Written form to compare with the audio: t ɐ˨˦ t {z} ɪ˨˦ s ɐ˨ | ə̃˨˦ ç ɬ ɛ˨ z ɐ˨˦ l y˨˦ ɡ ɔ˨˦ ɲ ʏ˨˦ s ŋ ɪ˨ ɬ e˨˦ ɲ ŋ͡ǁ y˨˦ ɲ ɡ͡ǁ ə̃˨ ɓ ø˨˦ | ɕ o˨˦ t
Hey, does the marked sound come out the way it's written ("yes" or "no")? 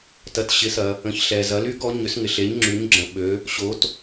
no